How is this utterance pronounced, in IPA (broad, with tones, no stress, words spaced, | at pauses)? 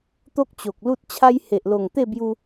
t̪o˦k̚t͡ɕo˨k̚lu˦t̚t͡ɕʰa˦j he˨ʔlo˨˩ŋt̪e˥˧bju˧